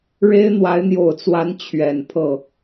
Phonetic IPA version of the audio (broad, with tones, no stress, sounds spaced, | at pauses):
ɻ e˥ ɪ̯ n̪ w a˧˥ ɪ̯ n̪ j o˨˩ ʊ̯ t͡s w a˧˥ n t͡ɕʰ ɥ ɛ˨˩ n pʰ ɤ˥˩